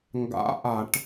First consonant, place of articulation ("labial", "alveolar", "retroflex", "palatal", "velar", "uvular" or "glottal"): velar